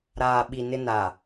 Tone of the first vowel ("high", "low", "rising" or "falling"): low